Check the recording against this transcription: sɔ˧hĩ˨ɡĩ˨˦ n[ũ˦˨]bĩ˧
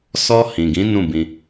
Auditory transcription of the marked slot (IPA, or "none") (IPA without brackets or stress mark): ũ˦˨